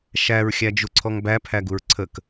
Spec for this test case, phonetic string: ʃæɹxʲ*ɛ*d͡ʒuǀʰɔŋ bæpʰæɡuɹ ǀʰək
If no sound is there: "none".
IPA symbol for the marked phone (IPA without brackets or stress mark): æ